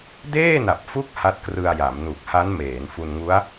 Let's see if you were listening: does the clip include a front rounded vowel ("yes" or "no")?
no